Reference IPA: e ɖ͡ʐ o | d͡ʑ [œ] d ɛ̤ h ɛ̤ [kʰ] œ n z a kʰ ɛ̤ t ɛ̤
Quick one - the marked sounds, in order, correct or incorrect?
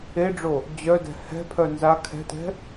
correct, incorrect

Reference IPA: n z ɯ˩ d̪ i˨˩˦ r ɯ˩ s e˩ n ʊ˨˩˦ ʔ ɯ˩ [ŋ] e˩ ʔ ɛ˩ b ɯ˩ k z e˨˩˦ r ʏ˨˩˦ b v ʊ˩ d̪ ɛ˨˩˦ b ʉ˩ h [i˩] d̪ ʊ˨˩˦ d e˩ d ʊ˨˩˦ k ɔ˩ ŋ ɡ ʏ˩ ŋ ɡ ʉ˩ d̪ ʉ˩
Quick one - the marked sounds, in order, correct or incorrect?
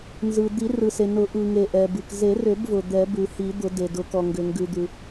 correct, incorrect

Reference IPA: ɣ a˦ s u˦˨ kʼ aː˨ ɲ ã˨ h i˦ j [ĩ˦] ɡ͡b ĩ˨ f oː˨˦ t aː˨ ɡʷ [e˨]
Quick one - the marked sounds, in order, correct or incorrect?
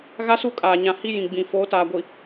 incorrect, incorrect

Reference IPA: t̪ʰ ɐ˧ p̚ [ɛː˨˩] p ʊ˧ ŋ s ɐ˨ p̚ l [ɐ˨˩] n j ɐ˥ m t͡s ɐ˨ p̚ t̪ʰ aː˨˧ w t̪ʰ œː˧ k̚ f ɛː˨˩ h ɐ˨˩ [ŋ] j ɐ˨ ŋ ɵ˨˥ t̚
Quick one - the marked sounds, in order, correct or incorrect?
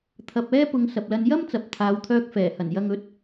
incorrect, incorrect, incorrect

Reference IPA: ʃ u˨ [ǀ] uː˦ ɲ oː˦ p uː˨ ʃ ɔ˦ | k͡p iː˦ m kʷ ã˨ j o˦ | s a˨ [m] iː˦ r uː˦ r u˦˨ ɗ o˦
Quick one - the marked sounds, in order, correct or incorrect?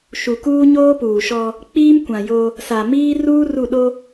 incorrect, correct

